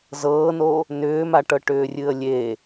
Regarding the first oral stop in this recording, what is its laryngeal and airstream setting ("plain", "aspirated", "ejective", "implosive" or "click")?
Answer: plain